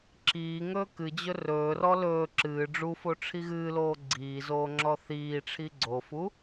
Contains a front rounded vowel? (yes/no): no